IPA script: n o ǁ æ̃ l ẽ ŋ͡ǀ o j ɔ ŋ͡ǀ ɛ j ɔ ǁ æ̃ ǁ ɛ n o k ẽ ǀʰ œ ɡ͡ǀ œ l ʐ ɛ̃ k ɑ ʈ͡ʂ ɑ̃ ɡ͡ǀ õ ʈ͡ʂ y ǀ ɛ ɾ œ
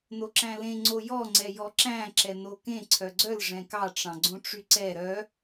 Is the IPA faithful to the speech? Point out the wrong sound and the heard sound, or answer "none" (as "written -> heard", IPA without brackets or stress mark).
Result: none